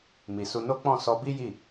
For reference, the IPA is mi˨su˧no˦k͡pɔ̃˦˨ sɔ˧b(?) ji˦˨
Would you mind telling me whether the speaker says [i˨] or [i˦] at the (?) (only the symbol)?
i˦